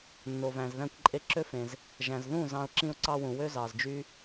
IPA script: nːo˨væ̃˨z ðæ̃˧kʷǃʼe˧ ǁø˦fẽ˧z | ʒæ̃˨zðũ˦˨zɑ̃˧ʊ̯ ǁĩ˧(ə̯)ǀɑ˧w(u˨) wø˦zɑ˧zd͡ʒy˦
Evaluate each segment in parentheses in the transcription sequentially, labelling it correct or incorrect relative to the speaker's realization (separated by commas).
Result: incorrect, incorrect